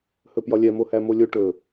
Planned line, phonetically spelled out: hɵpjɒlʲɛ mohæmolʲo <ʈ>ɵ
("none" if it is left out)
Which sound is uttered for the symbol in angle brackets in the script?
ʈ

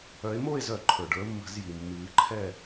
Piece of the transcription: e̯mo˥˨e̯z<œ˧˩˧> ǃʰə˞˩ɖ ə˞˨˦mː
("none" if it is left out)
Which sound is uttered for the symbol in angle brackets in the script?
œ˧˩˧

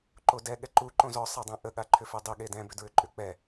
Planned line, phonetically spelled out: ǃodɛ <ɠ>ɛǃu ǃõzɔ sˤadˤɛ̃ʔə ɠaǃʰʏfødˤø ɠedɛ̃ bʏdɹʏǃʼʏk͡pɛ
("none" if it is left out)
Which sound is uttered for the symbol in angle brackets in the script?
ɠ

